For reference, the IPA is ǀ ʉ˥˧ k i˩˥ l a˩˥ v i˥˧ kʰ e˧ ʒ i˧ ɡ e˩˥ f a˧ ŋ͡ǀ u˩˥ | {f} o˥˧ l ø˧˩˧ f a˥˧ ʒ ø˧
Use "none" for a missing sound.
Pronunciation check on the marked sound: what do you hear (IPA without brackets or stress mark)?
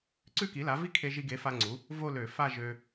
v